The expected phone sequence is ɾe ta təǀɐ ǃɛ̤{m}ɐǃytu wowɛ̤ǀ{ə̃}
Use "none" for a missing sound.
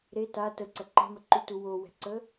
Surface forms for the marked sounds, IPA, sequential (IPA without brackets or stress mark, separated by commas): m, ə